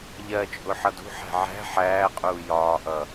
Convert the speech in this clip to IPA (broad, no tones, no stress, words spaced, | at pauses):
ʎɜt͡ʃʼʊ ħʌdṳħæ̤ ʕæ̤ ħæːqʼuː jɒːʔʌ